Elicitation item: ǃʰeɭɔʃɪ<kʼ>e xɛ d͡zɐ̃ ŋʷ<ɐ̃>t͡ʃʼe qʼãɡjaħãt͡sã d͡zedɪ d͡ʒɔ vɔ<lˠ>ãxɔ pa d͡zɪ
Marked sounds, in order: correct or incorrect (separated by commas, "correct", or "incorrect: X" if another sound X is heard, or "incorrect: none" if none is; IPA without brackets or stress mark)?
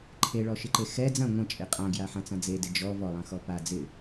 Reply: incorrect: ǃ, correct, correct